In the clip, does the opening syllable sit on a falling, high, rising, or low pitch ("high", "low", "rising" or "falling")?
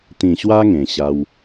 low